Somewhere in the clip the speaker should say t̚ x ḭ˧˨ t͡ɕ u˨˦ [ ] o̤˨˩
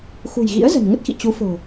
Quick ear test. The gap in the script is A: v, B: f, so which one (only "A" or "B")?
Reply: B